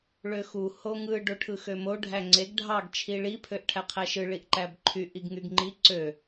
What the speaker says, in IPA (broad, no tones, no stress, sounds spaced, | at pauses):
ɭ ø x u h o ŋ ɯ ɖ o ʈʰ ɯ x ø m o ɖʱ æ ŋ͡ǀ e ɡ ɖʱ ɑ ɡ t͡ʃʰ i ɭ i pʰ ø ʔ ʈʰ æ qʰ æ ʃ ɯ ɭ i ʔ ǃ æ b ǃʰ y ʔ i ɡ ŋ y ɡ ŋ͡ǃ i ǀ ø